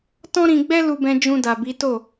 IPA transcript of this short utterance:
t ɔ̃˦ ɾ ĩ˧ ɡ͡b ɛ˦ l u˧ b ɛ̃˧ d͡ʒ ũ˧ d a˨ b i˨˦ t o˦˨

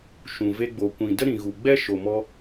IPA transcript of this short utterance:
ʃ ũ˨ v e˧ ɡ͡b o˨ kʷ ĩ˨ d ə˦ ɾ ĩ˨ ɣ u˨ ɡ͡b ɛ˦ ʃ o˨ m ɔ˧

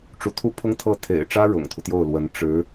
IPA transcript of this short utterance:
ʈ͡ʂ u˧˥ t̪ʰ u˥ pʰ ʊ˥ ŋ t̪ʰ ɤ˥˩ t̪ʰ ḛ˨˩ ɪ̯ ʈ͡ʂ ä˥ ɻ ʊ̰˨˩ ŋ t̪ʰ u˦ t̪ j o˥˩ ʊ̯ l w ə˧˥ n ʈ͡ʂ ɻ̩˧˥

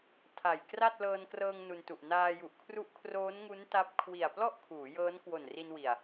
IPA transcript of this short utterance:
tʰ a˨˩ j k r a˥˩ t̚ l ɤː˧ n k r ɤː˧ ŋ n u˧ n t u˨˩ ʔ n aː˧ j u˨˩ ʔ kʰ r u˦˥ ʔ kʰ r oː˦˥ n ŋ u˦˥ n t a˦˥ p̚ kʰ w i˨˩ a̯ p l ɔ˥˩ ʔ kʰ uː˩˦ j ɤː˦˥ n k w o˨˩ n r i˧ n w i˨˩ a̯

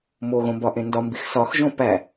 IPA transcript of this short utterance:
m o ɣ õ m b ɒ ʔ ẽ n d ɒ m b i x s ɒ x ʒ õ p æ

